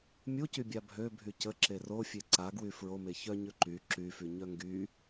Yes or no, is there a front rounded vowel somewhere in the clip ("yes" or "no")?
yes